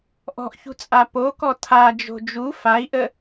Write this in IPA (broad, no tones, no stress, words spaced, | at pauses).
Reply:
ʔɔ̤ʔçṳt͡sʼa pokɔ tʰad͡ʒo̤ d͡ʒu fai̯ʔə